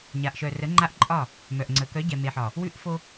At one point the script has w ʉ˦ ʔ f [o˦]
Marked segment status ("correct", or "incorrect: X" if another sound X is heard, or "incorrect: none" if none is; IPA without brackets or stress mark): correct